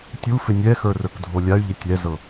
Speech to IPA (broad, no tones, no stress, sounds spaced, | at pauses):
tʲ u f ɪ nʲ ɛ x ə˞ r ə˞ k dʱ o lʲ a y̯ ʎ ɪ tʲ ɛ z ɤ